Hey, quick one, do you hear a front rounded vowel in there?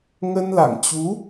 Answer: no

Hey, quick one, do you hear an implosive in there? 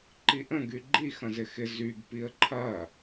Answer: no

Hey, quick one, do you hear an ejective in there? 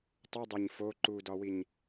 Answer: no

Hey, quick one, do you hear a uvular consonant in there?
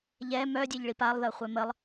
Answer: yes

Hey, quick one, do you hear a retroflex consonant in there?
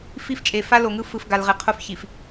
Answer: no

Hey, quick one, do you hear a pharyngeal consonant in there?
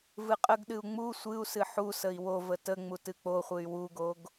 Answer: yes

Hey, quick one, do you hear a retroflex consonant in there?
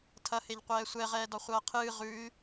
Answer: no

